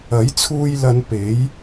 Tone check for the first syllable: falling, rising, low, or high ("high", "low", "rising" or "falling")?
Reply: rising